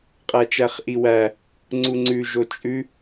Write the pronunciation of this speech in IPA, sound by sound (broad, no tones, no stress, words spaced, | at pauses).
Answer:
qʼæt͡ʃæχʔiwæ | ŋ͡ǀuŋ͡ǀʉ ʒot͡ʃʼʉ